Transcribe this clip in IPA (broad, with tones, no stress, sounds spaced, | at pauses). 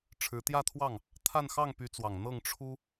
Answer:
ʈ͡ʂʰ ɻ̩˧˥ t̪ j ä˥˧ t̪ʰ w ɑ˥˩ ŋ | t̪ʰ a˥˧ n x ɑ˥˩ ŋ p y˧˥ t͡s w ɑ˨˩ ŋ n̪ ɤ˥˩ ŋ ʈ͡ʂʰ u˥